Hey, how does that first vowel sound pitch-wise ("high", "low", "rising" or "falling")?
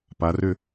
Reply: rising